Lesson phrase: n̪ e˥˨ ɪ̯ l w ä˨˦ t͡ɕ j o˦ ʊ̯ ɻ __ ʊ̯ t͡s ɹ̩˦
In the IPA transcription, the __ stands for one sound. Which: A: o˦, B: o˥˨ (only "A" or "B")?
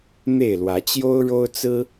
A